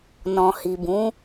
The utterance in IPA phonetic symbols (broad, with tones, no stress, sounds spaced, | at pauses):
n ɔ̃˨ h i˨ b ũ˨˦